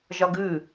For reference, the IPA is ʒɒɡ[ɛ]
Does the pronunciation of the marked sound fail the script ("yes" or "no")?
yes